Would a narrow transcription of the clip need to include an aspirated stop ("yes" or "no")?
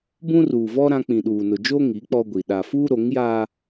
no